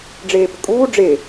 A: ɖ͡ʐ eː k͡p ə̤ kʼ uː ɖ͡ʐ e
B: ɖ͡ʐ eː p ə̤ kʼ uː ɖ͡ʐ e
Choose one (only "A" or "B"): B